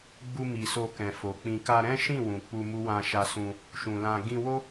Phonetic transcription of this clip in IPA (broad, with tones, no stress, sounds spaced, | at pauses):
ɡ͡b u˧ m i˨ s o˧ k ɛ̃˨ f o˨ k͡p ĩ˧ k a˧ ɾ ɛ̃˦ ʃ ĩ˦˨ w ũ˨ k͡p u˧ m u˦ w ã˧ ʃ a˧ s ũ˧ | ʃ ũ˨ l ã˧ ɡ ĩ˧ w o˦